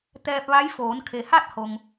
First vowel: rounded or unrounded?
unrounded